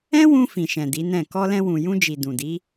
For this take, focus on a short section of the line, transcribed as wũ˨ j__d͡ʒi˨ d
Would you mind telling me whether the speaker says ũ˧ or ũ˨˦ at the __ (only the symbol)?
ũ˧